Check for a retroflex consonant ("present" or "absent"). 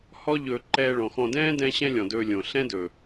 present